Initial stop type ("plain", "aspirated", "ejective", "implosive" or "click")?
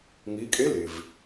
ejective